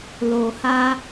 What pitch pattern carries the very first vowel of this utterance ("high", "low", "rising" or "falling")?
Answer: low